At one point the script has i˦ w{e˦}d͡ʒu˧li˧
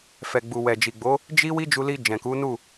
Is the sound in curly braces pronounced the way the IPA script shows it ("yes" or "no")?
no